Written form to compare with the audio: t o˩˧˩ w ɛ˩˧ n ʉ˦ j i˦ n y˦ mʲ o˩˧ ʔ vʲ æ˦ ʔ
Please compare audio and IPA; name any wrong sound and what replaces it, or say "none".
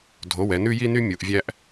t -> dʱ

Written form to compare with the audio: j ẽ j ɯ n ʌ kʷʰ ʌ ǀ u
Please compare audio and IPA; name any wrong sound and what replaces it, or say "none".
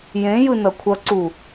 none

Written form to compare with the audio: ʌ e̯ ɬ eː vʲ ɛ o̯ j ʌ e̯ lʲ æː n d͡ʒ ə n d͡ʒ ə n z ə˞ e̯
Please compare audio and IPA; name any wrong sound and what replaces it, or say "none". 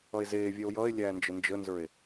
ɬ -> z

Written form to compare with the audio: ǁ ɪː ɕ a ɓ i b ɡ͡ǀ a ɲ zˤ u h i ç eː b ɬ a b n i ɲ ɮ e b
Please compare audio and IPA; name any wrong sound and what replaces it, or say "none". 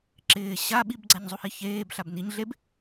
none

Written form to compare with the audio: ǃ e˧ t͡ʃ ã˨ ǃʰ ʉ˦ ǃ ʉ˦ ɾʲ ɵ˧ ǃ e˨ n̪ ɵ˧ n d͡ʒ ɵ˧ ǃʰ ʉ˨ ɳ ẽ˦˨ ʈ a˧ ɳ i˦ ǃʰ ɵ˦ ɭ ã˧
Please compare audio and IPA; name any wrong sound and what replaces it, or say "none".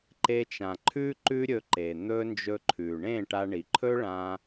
i˦ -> i˨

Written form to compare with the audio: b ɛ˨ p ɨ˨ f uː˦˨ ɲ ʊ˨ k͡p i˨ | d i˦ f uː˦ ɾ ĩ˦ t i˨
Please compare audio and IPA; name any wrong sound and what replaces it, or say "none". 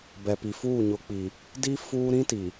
ɨ˨ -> i˨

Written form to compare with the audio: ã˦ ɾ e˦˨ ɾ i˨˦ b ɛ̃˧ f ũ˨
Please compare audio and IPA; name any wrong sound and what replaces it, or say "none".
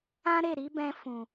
none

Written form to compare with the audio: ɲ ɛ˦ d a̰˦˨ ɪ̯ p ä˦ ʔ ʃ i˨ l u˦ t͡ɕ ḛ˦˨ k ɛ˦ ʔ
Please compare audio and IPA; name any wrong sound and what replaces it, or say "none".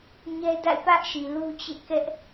none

